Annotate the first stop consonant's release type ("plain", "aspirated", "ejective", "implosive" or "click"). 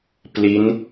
plain